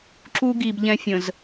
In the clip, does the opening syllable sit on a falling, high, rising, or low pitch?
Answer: high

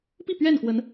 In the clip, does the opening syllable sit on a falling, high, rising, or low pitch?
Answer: falling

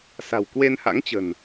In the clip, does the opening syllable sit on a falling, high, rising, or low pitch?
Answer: low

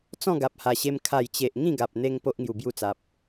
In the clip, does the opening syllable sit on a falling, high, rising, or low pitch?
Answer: falling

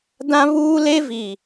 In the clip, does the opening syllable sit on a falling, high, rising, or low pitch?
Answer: high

